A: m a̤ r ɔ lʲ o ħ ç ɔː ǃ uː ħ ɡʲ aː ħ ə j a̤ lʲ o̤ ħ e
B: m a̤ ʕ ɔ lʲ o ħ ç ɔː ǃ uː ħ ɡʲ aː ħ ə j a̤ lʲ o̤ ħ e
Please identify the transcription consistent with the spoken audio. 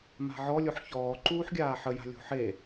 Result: B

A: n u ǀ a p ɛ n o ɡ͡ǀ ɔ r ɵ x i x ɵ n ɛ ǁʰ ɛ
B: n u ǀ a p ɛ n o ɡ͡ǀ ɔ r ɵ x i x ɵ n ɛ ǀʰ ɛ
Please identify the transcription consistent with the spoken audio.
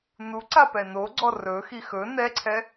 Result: B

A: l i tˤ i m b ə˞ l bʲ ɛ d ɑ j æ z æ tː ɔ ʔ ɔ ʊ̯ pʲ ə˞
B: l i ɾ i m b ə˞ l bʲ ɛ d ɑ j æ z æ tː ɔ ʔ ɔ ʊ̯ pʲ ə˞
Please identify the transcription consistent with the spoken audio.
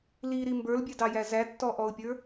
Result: B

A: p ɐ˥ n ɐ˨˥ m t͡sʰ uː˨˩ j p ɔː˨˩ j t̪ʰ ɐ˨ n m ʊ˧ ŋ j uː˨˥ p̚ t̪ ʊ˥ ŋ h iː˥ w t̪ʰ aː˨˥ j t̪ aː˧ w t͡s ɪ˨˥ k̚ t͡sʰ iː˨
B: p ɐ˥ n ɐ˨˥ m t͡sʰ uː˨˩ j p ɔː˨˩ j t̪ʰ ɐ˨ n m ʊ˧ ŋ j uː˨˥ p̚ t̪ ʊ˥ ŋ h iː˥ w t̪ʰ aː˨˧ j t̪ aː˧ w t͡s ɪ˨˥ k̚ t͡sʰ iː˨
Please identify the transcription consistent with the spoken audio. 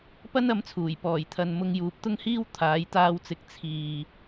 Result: A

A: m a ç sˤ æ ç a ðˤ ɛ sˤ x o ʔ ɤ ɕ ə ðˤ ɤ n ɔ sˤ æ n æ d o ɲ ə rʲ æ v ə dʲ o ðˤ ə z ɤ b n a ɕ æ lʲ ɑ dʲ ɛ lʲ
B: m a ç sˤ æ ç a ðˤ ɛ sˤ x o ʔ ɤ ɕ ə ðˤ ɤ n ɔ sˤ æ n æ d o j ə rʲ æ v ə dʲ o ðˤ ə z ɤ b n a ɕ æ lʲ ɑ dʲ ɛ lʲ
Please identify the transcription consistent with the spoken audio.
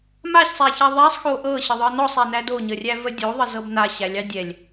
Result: A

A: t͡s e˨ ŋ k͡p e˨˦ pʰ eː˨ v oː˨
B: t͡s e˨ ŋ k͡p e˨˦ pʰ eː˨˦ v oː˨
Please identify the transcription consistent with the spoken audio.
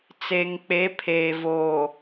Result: A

